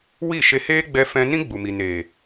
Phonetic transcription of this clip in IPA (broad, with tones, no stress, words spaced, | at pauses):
wi˦˨ʃe˧heː˦ ɡ͡bɛ˦fɛ̃˦ nĩ˦ɡ͡bu˨mi˨ neː˨